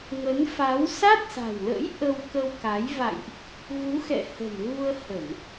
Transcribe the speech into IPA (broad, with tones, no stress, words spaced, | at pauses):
ŋə˨˦nfa˨˦w sa˦˥t̚sa̤˨˩wlə̰˧˥j ʔə˧wkə˧wka˨˦j va̰˧˨jʔ | ɣu˨˦xɛ̰˧˨ hə̤˨˩nɣu˧ə̯hə˧˩˨n